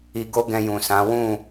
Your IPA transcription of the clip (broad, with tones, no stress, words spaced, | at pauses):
i˧ɡo˦ ɡɛ̃˧jũ˨sã˨˦ wũ˦˨